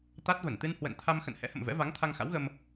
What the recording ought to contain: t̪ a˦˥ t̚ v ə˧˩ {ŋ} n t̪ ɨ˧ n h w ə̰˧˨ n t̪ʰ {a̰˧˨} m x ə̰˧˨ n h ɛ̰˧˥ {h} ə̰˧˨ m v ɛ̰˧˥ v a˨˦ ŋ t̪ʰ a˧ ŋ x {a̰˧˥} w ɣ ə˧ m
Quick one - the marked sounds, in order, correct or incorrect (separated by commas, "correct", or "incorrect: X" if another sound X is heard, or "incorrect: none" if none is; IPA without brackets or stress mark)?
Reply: incorrect: none, incorrect: a˧, correct, correct